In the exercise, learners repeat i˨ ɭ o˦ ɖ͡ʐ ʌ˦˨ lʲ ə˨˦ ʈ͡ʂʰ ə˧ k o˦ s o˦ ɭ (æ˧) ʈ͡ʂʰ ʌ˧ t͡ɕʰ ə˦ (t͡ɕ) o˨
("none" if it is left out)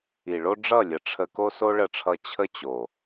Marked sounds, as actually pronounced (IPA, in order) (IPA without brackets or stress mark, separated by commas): ə˧, t͡ɕ